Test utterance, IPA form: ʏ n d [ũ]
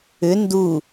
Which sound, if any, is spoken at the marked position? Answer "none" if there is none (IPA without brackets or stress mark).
u